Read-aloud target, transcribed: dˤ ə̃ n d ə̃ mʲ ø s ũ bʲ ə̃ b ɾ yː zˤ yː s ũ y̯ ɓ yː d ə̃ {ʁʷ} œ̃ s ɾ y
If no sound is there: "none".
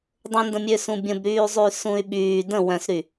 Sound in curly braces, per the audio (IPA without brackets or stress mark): w